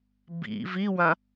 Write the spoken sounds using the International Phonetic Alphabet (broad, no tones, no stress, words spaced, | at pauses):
bḭ viwã